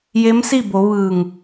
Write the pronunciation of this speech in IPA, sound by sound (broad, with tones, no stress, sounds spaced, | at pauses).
j e˧˥ m s i˥˨ b o˩˧ ʋ ɯː˧˩ ŋ